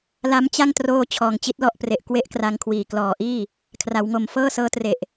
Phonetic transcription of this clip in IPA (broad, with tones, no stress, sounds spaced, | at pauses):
l a˦˥ m t͡ɕ a˥˩ ŋ t r oː˥˩ t͡ɕʰ ɔː˨˩ ŋ t͡ɕ i˦˥ t̚ l ɔ˥˩ ʔ p r e˨˩ ʔ k w e˥˩ ʔ k r a˧ ŋ kʰ w iː˨˩ k l ɔː˨˩ ʔ iː˥˩ | kʰ r a˩˦ w ŋ o˨˩ m f ɤː˥˩ s ɤː˦˥ t r e˨˩ ʔ